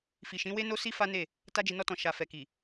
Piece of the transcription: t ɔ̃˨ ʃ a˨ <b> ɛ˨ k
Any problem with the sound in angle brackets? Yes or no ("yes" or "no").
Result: yes